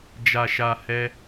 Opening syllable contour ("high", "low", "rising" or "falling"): low